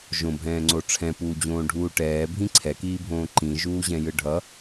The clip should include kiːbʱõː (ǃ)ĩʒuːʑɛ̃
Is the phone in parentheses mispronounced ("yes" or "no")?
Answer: no